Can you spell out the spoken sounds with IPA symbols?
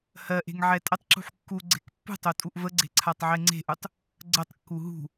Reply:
hɜʔe̤ŋ ʕɛtʼətˤǁṳħ kːu ɡ͡ǀe̤kpːṳtˤo tʼuʔvəɡ͡ǀe̤ ǀʰatˤʕeŋ͡ǀe̤ʔutˤ | ɡ͡ǀətˤkːu ɦṳ

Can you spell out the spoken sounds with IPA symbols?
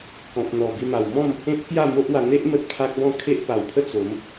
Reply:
kɔ̃˨p̚n̪ɔ˨˩ bi˧ma˨˩wmɔ̃˥˧m | ẽ˦t̚kja˥˧ mo˦ʔwa˧ n̪e˦ʔ mə˦t̚pʰa˦k̚bɔ̃˥˧ kʰe˦ʔpa˨˩wpʰə˥˧ t͡so˨˦m

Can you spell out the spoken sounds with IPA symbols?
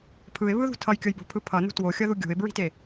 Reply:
pʰɯɪ̯βɯðṳ tʰʌjkʲʌjbo̤pʰɯ pʰʌnṳ twoxʲʌðu ɡʲo̤ɪ̯bɹi̤te

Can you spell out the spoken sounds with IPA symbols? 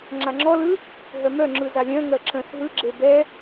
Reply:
ŋ͡ǁaŋ͡ǁɔlɯ | ɦœmœŋ͡ǁɯ zalʲœ̃ŋɜ ǁə̃s ɦɯɡ͡ǁe bɛ

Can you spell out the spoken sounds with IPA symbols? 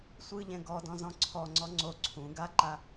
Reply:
sʷɯʎɛ̃ ɡɔdɔ̃zɔ̃ ǀʰɔŋ͡ǀɔ ŋ͡ǀo ǀʰũ ɡaǃa

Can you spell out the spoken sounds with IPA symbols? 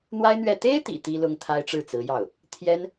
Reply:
n̪wa˥ɪ̯n̪ɥɛ˥˩ t̪e˥ɪ̯t̪ḭ˨˩ t̪i˥lʊ˥ŋt̪ʰa˥ɪ̯ ʈ͡ʂɻ̩˥˩t͡sɹ̩˧˥jɑ˥˩ʊ̯ | t̪ʰjɛ˥n

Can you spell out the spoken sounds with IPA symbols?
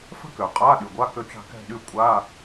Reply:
fə̤˥kø˩qʼa˧˥˧ɗy˩ ɡʷa˧˥˧kø˦˨t͡ʃa̤˦˨ kɛ̤˦˨ɗy˦˨ kʷʼa˧˥˧

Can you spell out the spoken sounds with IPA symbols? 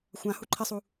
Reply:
xʷãhu ǃʰɪsˤu

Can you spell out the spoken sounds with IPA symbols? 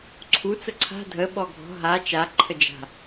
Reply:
ǀʰut͡sə ǀʰa̤ dʱə ɓɔɡʱɔ̤ ɦa t͡ʃa ǃʰəd͡ʒa̤

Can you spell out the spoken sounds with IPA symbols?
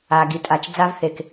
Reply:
a˩ɡi˩tʼa˩t͡ʃ d͡za˧v θe˩k

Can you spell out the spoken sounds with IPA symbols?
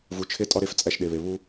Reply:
vu˨t͡ʃʰe˦ tʼɒ˦ɾe˦˨f t͡sʼæ˦ʃɗe˨βe˨ βu˦

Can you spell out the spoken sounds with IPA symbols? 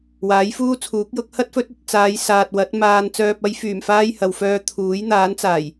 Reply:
waː˨˥jfuː˥t͡sʰuː˨˥k̚jʊ˨˥k̚ hɐ˥t̚fɵ˨˥t̚ɐ˨t̚ t͡saː˨˧jsaː˨t̚wɐ˨˥t̚ maː˧n t͡sœː˨p̚ɐ˧jfyː˨˩mfaː˧j hɐ˨wfœː˧ t̪ʰuː˨˥jn̪aː˨˥nt͡saː˨˩j

